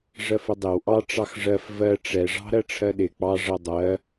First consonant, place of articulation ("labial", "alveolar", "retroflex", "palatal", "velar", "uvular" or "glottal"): retroflex